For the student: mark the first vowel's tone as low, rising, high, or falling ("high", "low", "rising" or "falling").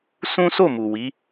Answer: high